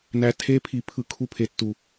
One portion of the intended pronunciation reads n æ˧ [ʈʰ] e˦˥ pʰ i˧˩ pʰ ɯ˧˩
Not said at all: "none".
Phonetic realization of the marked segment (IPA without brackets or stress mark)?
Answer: tʰ